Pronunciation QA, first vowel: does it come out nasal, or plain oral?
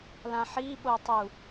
nasal